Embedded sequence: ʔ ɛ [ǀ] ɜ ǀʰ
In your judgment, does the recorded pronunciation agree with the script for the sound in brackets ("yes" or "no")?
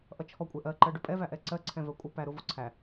yes